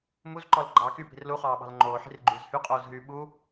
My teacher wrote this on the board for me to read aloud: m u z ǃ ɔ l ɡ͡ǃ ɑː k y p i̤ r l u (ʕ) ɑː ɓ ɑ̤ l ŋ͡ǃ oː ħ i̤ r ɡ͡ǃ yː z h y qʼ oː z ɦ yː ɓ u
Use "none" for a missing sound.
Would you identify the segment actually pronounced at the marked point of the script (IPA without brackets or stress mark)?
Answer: χ